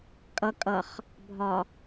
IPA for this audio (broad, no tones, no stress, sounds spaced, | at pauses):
kʼ ʌ kʼ ʌ χ | bʱ ɒ